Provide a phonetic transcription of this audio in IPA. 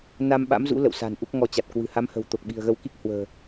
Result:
n a˧ m ɓ a̰˧˥ m z ṵ˧˥ l ə̰˧˨ w s a̤˨˩ n ʔ u˦˥ k̚ ŋ ɔ˧ t͡ɕ a˨˩ t̚ k w ɨ̤˨˩ h a˨˦ m h ə̤˨˩ w t̪ o˨˩ k̚ ɓ i̤˨˩ ə̯ ɣ ə˧ w k i˦˥ k̚ h w ə̤ː˨˩

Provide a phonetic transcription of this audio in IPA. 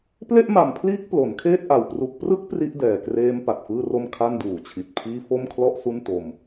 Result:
p l e˥˩ ʔ m a˨˩ m pʰ l iː˦˥ k̚ p l o˩˦ n kʰ eː˥˩ t̚ ʔ a˨˩ w p r u˨˩ k̚ p r ɯ˦˥ k̚ p r i˦˥ ʔ d ɛː˨˩ k r eː˦˥ m p a˨˩ t̚ f ɯː˥˩ r o˥˩ m kʰ a˥˩ n d uː˨˩ t͡ɕʰ i˨˩ t̚ pʰ iː˥˩ f o˥˩ m kʰ l ɔ˥˩ ʔ s u˥˩ n t o˧ m

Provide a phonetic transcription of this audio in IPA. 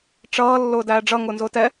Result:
ʈ͡ʂ ʌː lː ʊː d æː ɖ͡ʐ ʌ ŋ ʊː n z ʊː t ɛ

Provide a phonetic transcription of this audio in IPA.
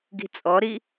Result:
ɡ i̤ t͡sʼ ɔ ɾ i

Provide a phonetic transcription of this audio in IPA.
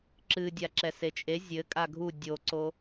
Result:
ǁ ɨ dʲ a ǁ ɛ s e t͡ʃʼ e zʲ ɘ kʼ a ɡʱ u dʲ o ǀ o

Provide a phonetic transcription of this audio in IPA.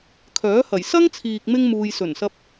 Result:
kʰ œː˨˥ h ɐ˨˩ j s ɐ˥ ŋ t͡sʰ iː˨ k̚ m ɪ˧ ŋ m uː˨ j s ɵ˨˩ n s ɐ˧ p̚

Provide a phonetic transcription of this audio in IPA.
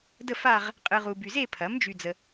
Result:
d ə˥˧ f a˥˧ ʁ | qʼ ɯ˨ ʁ u˨ b y˨ z e˥˧ pʰ ɐ˩˥ m d͡ʒ y˨ d͡z ə˨

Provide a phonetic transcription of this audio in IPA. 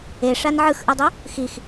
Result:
e ʂ a n ʕ ɯ x ʔ ɯ dˤ u | x i x

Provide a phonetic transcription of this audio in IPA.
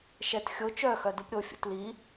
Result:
ʃ ɛ t xʲ o t͡ʃ œ x œ d ɯ p ɾʲ o fʲ ṵ t l i

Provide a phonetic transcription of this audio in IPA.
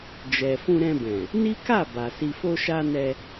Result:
d͡ʒ ɛ˨ f ũ˧ ɾ ɛ̃˧ b ɛ̃˨ | n i˦ k a˦˨ b a˨ s i˨ f o˧ ʃ a˧ n ɛ˧

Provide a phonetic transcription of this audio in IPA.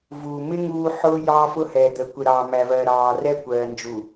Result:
v uː˨ m ɪ˦ ŋ uː˦ ħ ʊː˦ j ɑː˦ f ʊ˦ h ɛː˨ d̪ ə˨˦ kʷ ɪ˨ ɾ ɑː˨ m æ˨ v ɜː˨ ɾ ɑː˨ r ɛ˦ kʷ ɜː˨ n d͡ʒ u˨

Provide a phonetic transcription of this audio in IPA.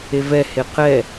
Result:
e v ɛ h e q ɛ

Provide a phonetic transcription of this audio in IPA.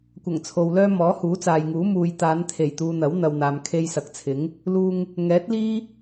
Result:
kʷ ɐ˨˩ ŋ t͡sʰ o˨ w l œː˥ m ɔː˨˥ h uː˨˥ t͡s aː˨ j ŋ uː˨˥ m uː˨ j t̪ aː˨˧ n t̪ʰ e˨˩ j t̪ uː˨ n̪ ɐ˨˥ w n̪ ɐ˨ w n̪ aː˨ m kʰ e˧ j s ɐ˨ k̚ t͡sʰ ɪ˨˥ ŋ | l uː˧ ŋ | ŋ ɛː˨˥ t̚ l iː˥

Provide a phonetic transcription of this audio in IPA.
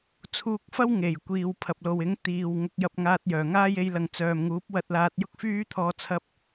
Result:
t͡sʰ uː˧ k̚ f ɐ˥ w ŋ e˨˩ j kʷ iː˨ w pʰ ɐ˨ p̚ l o˨ w ɪ˨˥ ŋ t̪ iː˨ w ŋ ʊ˧ k̚ j ɐ˧ p̚ ŋ aː˧ t̚ j œː˨˩ ŋ aː˥ j e˧ j l ɐ˨ ŋ t͡s œː˨ m ŋ uː˨˥ p̚ w ɐ˧ t̚ l aː˧ t̚ j ʊ˥ k̚ f yː˥ t̪ʰ ɔː˧ t͡sʰ ɐ˥ p̚

